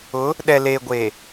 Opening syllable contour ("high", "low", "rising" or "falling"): rising